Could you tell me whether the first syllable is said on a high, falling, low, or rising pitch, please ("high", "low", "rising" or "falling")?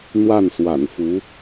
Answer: falling